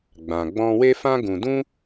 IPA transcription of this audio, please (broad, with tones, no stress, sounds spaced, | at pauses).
ɡ͡b ã˨ ɡ͡b ɔ̃˦ w e˦ f ã˦ ɡ ũ˨ d ũ˦